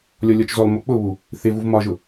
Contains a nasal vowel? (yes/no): no